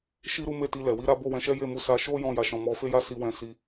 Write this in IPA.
ʃ i˦ ɾ u˦ m e˦˨ t i˧ l ɛ˨ w i˧ ɾ a˦ b o˦˨ w ɛ̃˧ ʃ ɛ˦ j e˦˨ m u˨˦ s a˧ ʃ o˦ j ɔ̃˦˨ j a˨˦ ʃ ɔ̃˧ m ɔ˧ f e˦ j a˦ s i˧ w ɛ̃˧ s i˧

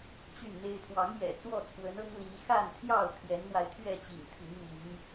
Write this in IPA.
t͡ɕ y˥˨ n n̪ e˦ ɪ̯ pʰ w ɑ˨˦ ŋ j ɛ̰˨˩ t͡s w ɔ˥˨ t͡sʰ w ə˨˦ n ɤ˦ ŋ l i˨˦ x a˥˨ n t̪ʰ j ɑ˥˨ ʊ̯ t̪ʰ j ɛ˨˦ n n̪ w a˧ ɪ̯ t̪ʰ ɥ ɛ˥˨ t͡ɕ ḭ˨˩ ŋ t̪ʰ i˨˦ ŋ m i˨˦ ŋ

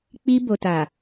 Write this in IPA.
k͡p i˧ b o˨ t a˨

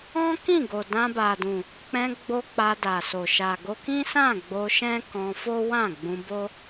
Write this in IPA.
ɔ̃˦ k ĩ˦˨ ɡ o˨ d ã˧ b a˨ d ũ˨ | k͡p ɛ̃˧ ɡ͡b o˧ k͡p a˧ d a˨ s o˨ ʃ a˨ ɡ o˧ k ĩ˦ s ã˦˨ ɡ͡b o˧ ʃ ɛ̃˦ k ɔ̃˧ f o˦ w ã˦˨ ɡ͡b ũ˧ b o˦

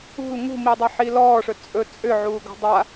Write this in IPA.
ṳ l ŋ ṳ m i dˤ ʌ ħ i l ɔː ʂ ɵ t͡sʼ ɵ t͡sʼ ʏ ʕ uː ɡ o̤ dˤ a

